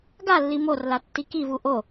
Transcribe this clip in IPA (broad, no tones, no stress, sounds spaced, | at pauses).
ɡ a lː i m o r l a tː i k i v u ʔ o